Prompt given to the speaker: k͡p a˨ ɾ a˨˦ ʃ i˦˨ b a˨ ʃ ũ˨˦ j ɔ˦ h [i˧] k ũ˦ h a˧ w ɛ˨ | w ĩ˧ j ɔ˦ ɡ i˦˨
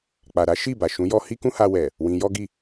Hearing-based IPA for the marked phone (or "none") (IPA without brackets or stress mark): i˦